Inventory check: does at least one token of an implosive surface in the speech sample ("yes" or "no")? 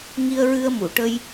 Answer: no